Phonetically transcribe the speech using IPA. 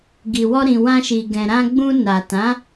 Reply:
ɡ i˨ w ɔ˧ ɾ ĩ˨ w ã˧ ʃ i˨ ɡ ɛ̃˨ ɾ ã˧ ɡ͡b ũ˧ n a˨ t ã˨˦

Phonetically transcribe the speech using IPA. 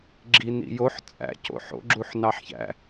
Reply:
ɡ͡ǁ i n ḭ j o ħ t͡sʼ æ̰ c o̰ ħ o̰ ɡ͡ǁ u ħ n ɑ ħ ç æ̰

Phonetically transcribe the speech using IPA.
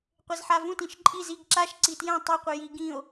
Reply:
qʷ e z ħ a v ũ t ĩ ʃ ǃʼ i z i ɡ ǁ a ʃ ǀ i t j ɛ̃ tˤ e qʷ e j i ɡ ĩ o̯

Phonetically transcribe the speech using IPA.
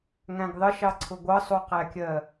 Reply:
ŋ æ̃ ɡ ðˤ ə ʃ ɑ ǀʰ ʊ ɡʷ ʌ sˤ u q æ kʲ ɜ

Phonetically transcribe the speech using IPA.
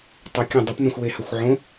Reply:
tˤ u kʲ ɐ̃ dˤ ɐ p n ɐ̃ xʷ w e h ɐ xʷ ʕ õ

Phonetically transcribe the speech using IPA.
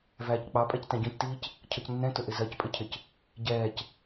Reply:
v æː c k͡p ɑ pʼ ɛ c t æ̃ ɟ ɔ̃ c t iː c | cʰ ʌ c nː ɛ̃ t ʊ ʔ ɪ z ɜ c pʼ ɪ cʰ ɪ c | ɟ ɛː c

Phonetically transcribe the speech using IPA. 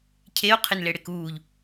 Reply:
cʰ e o̯ qʰ ɪ n l e ɽ e k uː ʎ

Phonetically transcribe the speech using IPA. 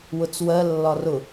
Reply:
w ʊ t͡s w ɜ lː ɒ r ʊ

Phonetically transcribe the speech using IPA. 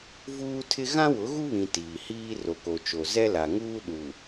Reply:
v uː˦ tʰ ɪ˦ ɣ ã˦ w ʊ˨˦ ɣ u˦ β ĩ˨ t iː˨ h iː˦ r o˨ k o˨ t͡ʃ o˨ z ɛ˦ l a˨ ŋ uː˦ ɗ u˨

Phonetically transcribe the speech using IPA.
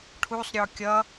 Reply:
ʈʰ u sˤ ɾʲ ɔ kʲ ʌ

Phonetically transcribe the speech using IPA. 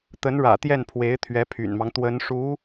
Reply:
t̪ ə˧˥ n ɻ ä̰˨˩ t̪ j ɛ˥˩ n pʰ w e˧˥ ɪ̯ t̪ʰ ɥ ɛ˧˥ pʰ y̰˨˩ n m ɑ˦ ŋ t̪ w ə˧˥ n ʂ u˧˥

